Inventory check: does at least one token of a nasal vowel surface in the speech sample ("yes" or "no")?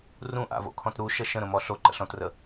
yes